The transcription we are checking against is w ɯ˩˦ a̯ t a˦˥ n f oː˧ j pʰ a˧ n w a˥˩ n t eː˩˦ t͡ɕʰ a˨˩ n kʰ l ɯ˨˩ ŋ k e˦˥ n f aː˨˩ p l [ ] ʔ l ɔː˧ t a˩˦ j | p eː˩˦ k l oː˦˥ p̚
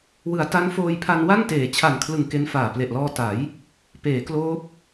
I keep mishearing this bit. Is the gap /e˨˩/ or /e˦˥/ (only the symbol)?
e˨˩